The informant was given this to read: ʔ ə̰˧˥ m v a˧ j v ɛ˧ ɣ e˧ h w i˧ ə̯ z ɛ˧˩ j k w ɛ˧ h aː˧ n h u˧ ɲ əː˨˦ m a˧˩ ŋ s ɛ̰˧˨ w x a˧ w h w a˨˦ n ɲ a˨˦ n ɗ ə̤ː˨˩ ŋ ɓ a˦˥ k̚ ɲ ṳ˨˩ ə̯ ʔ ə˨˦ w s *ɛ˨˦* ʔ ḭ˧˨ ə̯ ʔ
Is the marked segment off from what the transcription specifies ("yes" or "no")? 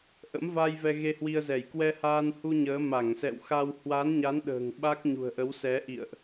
no